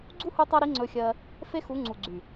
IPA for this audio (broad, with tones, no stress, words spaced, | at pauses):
ɡ͡ǀu˦hu˧tˤɜ˧ɾi˨˦ ŋ͡ǀɵ˧xʲɜ˧ | fe˦xu˨˦ŋ͡ǀu˨ ɡ͡ǀy˨